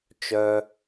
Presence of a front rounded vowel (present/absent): present